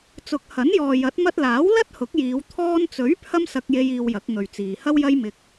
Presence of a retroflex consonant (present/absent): absent